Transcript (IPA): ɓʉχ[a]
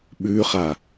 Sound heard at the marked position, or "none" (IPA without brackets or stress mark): a